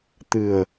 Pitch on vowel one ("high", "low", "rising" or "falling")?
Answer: low